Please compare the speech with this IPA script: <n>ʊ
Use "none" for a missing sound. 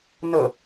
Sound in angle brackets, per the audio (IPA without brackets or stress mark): n